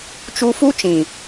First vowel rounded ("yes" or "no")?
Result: yes